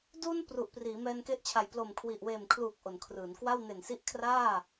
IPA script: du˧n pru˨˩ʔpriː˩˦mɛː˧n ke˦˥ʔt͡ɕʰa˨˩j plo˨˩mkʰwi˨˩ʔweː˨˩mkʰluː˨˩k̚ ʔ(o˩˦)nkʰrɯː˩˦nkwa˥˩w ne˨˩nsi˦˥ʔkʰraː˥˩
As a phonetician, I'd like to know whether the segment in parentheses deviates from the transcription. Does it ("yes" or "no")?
no